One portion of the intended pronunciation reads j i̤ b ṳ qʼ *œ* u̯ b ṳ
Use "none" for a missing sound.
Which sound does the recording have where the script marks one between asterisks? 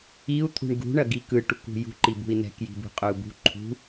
ø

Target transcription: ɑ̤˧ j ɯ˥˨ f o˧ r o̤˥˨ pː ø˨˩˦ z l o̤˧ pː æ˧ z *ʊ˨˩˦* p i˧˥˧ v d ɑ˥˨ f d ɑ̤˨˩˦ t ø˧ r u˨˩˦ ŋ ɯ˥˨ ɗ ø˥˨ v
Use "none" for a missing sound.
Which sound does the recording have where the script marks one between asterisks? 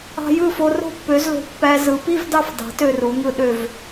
ɯ˨˩˦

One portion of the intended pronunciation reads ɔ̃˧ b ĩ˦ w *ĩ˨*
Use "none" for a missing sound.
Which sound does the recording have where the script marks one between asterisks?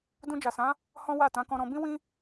ĩ˦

